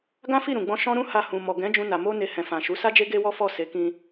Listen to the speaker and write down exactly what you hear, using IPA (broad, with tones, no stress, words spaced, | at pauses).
ɡã˦fi˦˨ ɾũ˨ɡ͡bɔ̃˧ ʃɔ̃˦ɾũ˦ha˧ hũ˨mɔ˨ɡɛ̃˨˦ d͡ʒũ˦na˧ mo˦ ne˧hɛ̃˨fã˨ ʃu˨˦ sa˦d͡ʒe˦ ɡe˦wɔ˦fɔ˦˨ se˨˦kĩ˧